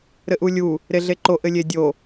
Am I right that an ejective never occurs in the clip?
yes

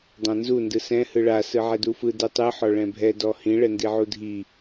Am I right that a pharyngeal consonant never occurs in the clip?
no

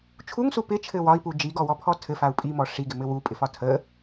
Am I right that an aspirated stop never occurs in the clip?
no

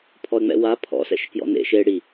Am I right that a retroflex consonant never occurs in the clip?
no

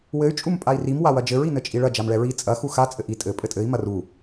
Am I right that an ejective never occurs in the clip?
no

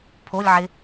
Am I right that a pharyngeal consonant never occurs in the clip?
no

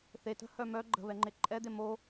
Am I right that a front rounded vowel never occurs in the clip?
no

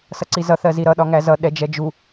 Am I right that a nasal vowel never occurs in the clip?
yes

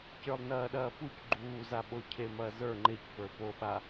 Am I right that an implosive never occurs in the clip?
no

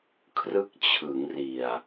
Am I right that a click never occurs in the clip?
yes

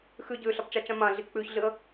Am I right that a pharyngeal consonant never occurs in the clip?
yes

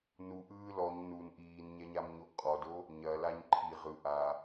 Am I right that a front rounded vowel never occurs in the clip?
yes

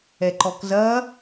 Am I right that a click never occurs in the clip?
no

